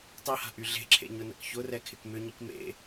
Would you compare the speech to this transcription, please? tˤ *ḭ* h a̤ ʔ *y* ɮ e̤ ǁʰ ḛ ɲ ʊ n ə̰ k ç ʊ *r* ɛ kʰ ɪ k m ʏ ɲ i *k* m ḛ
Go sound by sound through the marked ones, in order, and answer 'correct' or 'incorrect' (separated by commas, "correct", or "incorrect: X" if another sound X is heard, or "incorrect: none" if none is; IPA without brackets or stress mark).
incorrect: i, correct, correct, correct